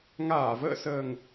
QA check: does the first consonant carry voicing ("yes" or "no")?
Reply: yes